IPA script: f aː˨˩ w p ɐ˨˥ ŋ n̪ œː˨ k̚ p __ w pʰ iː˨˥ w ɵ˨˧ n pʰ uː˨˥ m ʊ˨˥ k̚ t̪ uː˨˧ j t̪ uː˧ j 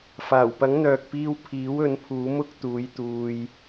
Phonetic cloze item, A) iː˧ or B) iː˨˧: A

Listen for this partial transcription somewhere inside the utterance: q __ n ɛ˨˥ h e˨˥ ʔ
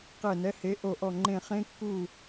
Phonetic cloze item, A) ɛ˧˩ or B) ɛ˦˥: A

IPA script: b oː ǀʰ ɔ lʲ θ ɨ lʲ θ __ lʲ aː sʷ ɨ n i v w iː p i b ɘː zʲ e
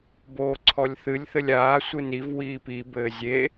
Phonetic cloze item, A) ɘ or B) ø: A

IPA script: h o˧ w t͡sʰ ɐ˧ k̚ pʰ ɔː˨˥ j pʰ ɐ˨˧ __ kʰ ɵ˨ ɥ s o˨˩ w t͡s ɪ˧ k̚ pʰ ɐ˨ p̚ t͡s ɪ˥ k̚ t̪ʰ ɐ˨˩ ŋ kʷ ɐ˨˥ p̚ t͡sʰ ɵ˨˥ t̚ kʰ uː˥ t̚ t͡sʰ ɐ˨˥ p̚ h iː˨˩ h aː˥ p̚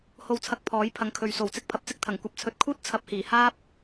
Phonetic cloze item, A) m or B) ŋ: B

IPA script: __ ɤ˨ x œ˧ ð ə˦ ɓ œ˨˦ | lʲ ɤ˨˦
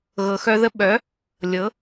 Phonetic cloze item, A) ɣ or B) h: A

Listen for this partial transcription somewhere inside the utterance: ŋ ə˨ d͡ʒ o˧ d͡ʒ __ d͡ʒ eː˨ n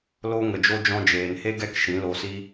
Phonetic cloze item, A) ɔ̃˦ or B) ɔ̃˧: B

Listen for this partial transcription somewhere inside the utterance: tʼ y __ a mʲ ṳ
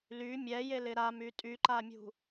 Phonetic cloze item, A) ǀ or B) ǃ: B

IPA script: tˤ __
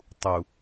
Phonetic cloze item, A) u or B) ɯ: A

